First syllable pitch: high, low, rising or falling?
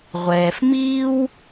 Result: low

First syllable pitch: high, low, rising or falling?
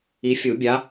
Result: rising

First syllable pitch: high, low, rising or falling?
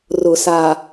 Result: low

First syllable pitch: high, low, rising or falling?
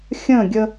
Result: falling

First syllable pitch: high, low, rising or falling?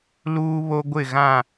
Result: high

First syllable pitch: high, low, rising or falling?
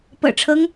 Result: low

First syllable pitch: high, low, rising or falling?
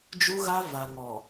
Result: high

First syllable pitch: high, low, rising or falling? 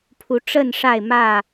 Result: rising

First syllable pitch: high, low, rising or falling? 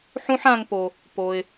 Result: high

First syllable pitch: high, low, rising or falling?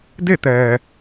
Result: falling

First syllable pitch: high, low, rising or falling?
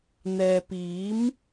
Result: low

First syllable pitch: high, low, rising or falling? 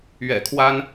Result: low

